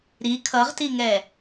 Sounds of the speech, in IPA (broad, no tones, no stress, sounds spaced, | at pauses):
ɾ i kʰ ʌ ʁ t i ŋ ɛ